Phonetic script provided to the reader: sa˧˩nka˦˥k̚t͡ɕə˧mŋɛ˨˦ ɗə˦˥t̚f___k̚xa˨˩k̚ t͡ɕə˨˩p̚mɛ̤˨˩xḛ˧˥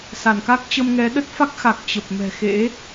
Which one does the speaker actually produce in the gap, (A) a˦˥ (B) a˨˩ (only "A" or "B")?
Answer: A